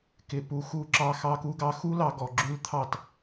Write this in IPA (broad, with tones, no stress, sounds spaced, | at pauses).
k ɪ˨ p u˨˦ x u˧ ǁ ɑ˧ x ɑ˦ k u˦ ɡ ɑ˦ x u˦ l ɑ˧ ɡ ɔ˨ ɡ͡ǁ ʉ˦ l t̪ʰ ɑ˦˨ t